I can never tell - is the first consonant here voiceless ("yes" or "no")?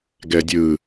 no